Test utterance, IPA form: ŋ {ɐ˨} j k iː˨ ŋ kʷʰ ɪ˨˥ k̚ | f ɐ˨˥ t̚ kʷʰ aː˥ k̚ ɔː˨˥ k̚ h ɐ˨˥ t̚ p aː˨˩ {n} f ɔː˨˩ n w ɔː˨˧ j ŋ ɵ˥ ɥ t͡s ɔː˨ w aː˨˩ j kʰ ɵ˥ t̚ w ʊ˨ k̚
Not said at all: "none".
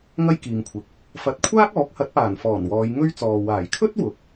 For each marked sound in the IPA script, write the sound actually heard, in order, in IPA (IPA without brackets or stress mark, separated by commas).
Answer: ɐ˥, n